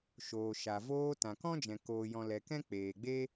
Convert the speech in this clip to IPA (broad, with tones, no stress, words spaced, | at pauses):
ʃoː˨ʃa˨voː˧ tã˨kɔ̃˦d͡ʒɛ̃˨ koː˨jɔ̃˨ lɛ˨kɛ̃˦ k͡peː˨ɡ͡be˦